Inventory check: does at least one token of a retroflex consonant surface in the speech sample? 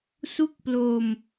no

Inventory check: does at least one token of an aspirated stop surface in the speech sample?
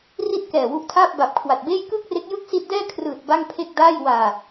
yes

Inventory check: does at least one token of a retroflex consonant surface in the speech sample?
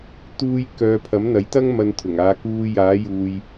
no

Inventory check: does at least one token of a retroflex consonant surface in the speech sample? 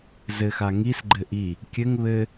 no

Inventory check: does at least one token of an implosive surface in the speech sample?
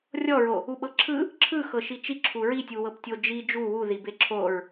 yes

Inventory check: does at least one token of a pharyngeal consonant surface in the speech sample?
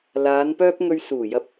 no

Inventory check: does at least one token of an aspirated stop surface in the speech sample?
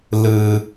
no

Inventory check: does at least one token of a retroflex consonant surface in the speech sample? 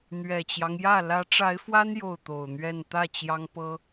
yes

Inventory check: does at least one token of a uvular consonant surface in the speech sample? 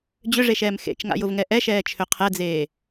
yes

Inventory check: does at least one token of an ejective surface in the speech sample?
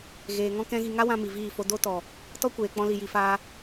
no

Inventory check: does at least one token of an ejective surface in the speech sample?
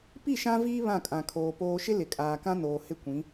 yes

